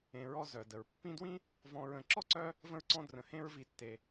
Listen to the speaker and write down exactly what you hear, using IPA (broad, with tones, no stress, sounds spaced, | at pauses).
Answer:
ẽ˨ ɹ ɔ˦ z œ˩ d ə˩ ɹ pː ĩ˦ d w ĩ˥ | v ɔ̃˦ ɹ ə̃˨ ǁ ɔ˥ ǀ œ˦ | v ə̃˥ ɹ ǀ ɔ̃˥ d r ə̃˨ h ẽ˥ ɹ v i˨ tː e˨